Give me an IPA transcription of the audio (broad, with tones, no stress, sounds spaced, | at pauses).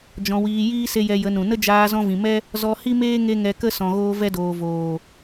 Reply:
d͡ʒ ɔ̃˧ w iː˧ j iː˦ s e˧ j ɛ˧ j ə˨˦ n ũ˨ n ə˦ d͡ʒ aː˧ z ɔ̃˧ v ĩ˨ m ɛ˦ | z ɔ˧ h i˦ m eː˦ ŋ e˦ ŋ ɛ˧ k ə˦ s ɔ̃˨ ɣ oː˧ v ɛ˧ d oː˨ v oː˨